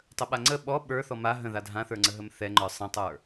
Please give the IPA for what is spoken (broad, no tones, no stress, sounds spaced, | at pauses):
tˤ ə ɓ a ŋ͡ǀ ə ɓ ɔ ɓ ə˞ θ ɔ m a ɦ ə̃ ð a dʱ ã θ ə˞ ŋ͡ǀ ə ɦ ə m θ ɛ ŋ͡ǃ ə˞ sˤ ə̃ tˤ ə˞